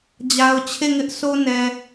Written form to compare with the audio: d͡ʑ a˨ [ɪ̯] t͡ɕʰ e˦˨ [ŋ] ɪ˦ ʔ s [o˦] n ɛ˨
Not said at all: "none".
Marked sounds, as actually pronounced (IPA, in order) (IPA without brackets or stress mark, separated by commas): ʊ̯, ŋ, o˦